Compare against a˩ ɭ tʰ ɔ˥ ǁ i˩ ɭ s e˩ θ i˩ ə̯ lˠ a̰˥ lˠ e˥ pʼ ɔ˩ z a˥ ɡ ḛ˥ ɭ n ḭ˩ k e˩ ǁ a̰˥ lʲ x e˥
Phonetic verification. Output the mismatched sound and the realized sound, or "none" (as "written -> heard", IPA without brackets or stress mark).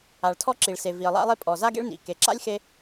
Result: θ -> v